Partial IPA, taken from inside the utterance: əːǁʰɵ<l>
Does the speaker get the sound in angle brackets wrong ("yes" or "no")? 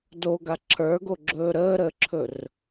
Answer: yes